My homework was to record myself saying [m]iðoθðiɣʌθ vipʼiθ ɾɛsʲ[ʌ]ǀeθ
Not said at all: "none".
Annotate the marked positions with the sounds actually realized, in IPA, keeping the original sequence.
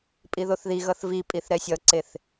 pʼ, ʌ

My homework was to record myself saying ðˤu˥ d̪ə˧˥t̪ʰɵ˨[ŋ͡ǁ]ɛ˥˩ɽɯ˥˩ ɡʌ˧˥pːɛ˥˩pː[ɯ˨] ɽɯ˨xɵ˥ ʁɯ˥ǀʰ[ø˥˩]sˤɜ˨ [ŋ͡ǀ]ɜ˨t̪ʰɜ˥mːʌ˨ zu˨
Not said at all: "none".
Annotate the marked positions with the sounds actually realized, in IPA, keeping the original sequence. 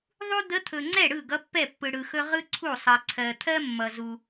ŋ͡ǀ, ɯ˨, u˥˩, ǀʰ

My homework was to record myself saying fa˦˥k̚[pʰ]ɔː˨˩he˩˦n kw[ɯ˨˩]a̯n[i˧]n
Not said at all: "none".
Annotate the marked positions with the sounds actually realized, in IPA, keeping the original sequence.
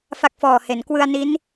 f, ɯ˧, i˦˥

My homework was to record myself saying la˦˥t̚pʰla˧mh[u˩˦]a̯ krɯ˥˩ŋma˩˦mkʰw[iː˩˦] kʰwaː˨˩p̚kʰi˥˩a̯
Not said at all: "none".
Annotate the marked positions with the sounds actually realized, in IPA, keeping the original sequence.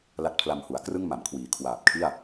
u˩˦, iː˩˦

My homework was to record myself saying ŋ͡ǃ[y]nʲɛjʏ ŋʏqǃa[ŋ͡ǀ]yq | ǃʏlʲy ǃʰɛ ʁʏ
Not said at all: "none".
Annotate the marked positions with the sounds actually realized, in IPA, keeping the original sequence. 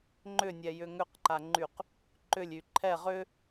ʏ, ŋ͡ǃ

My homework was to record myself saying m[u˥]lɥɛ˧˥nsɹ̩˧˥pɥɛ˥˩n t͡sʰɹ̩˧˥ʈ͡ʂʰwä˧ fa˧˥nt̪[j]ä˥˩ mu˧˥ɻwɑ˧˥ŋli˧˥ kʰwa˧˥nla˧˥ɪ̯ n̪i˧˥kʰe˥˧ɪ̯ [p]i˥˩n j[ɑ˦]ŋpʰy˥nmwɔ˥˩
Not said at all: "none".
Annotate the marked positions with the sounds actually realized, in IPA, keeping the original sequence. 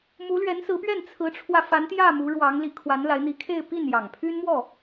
u˧˥, j, p, ɑ˨˩

